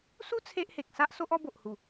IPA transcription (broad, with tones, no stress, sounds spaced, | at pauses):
s u˦ t͡sʰ e˦ ʔ h e˨ k̚ s a˦ ʔ s o˦ ʔ ɔ˦ b o˨ ʔ h u˨˩